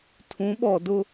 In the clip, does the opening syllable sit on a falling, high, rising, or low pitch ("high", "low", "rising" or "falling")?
rising